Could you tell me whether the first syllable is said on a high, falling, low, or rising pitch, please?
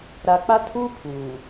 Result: low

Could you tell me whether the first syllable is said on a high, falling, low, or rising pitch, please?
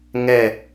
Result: falling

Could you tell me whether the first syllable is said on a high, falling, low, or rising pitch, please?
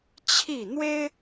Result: falling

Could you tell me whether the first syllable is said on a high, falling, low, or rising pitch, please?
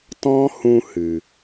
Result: high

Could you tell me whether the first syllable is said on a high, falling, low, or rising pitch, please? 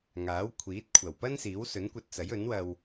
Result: rising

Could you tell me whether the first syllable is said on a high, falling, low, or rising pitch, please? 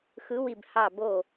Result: rising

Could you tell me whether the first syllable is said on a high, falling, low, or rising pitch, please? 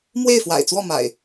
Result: falling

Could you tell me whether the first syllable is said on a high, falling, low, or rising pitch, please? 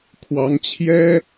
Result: rising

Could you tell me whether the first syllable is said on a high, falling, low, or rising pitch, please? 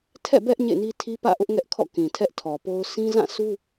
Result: falling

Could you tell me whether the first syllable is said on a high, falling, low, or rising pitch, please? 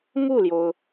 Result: falling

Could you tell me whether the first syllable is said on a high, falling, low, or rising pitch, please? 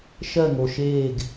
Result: falling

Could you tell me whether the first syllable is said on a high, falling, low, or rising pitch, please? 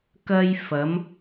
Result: high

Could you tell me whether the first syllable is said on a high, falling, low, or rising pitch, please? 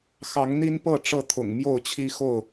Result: rising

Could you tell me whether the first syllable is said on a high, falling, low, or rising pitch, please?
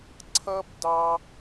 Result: high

